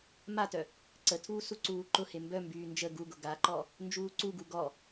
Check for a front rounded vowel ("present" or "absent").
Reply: present